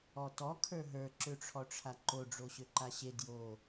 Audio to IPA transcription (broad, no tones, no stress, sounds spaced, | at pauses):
ɔ t ɔ kʰ ə˞ ɦ ə˞ ǁ ø ʈ͡ʂʰ ɔ ʈ͡ʂʰ a ǃ o ɖ͡ʐ o ɕ ø ǃ a ɕ e d j o